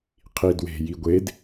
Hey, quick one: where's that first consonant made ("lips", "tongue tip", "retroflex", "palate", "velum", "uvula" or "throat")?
uvula